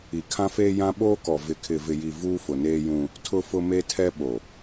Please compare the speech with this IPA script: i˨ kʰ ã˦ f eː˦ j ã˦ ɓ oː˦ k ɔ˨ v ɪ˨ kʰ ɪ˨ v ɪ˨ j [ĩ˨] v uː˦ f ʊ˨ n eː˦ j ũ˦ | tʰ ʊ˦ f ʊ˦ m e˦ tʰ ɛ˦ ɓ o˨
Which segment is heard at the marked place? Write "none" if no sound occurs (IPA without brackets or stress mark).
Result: i˨